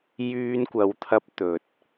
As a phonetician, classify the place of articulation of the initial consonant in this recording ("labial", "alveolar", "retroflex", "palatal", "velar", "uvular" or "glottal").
palatal